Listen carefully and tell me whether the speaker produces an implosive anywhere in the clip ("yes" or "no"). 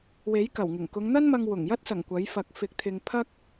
no